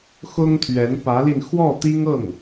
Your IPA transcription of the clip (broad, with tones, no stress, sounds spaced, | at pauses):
x ʊ˥ ŋ t̪ʰ ɥ ɛ˧˥ n p ä˧˥ l i˧ n x w ɔ˥˩ t̪ i˥ ŋ ɤ˥˩ ŋ